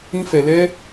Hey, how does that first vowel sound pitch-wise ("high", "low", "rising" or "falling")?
high